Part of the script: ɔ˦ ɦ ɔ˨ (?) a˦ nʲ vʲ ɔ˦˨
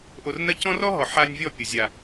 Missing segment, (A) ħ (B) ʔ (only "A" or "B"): A